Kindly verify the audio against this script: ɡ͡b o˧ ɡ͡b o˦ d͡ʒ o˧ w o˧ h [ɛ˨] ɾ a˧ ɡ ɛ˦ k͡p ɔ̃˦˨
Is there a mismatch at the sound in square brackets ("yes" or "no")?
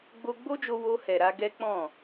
no